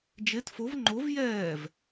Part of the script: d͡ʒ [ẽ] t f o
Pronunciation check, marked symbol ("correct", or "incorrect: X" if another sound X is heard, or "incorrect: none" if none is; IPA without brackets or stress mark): incorrect: e